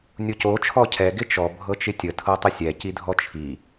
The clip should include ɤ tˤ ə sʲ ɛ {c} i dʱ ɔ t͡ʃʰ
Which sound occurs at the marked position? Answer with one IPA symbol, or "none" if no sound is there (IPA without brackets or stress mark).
c